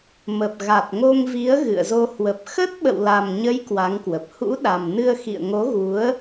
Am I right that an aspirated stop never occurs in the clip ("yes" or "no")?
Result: yes